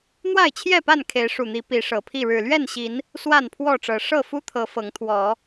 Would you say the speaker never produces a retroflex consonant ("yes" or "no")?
no